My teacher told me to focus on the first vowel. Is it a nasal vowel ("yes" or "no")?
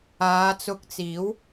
no